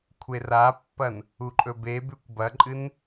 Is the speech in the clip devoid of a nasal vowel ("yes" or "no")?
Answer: yes